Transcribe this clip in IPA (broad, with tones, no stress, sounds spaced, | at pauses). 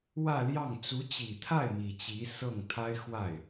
w ä˥˧ l j ɑ˥˩ ŋ t͡s u˧˥ t͡ɕ i˨˩ t̪ʰ a˥˩ ɪ̯ m i˨˩ t͡ɕ i˧˥ s ɤ˥˩ ŋ t̪ʰ a˥ ɪ̯ x w a˥˩ ɪ̯